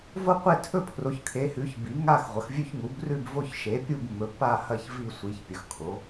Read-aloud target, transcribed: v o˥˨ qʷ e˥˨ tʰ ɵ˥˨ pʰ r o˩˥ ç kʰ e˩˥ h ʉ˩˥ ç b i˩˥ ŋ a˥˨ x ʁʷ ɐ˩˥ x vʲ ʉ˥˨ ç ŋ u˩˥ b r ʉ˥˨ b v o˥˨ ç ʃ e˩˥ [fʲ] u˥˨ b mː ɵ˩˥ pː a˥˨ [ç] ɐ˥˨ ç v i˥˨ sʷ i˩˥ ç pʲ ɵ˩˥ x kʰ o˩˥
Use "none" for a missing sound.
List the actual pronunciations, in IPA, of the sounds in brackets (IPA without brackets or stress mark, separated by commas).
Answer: pʲ, h